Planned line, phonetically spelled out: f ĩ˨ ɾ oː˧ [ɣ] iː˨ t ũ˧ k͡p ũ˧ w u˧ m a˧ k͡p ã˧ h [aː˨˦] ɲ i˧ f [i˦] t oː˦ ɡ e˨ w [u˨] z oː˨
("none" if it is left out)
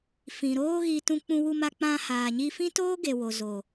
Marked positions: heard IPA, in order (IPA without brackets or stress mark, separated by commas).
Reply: ɣ, aː˨, ĩ˦, o˨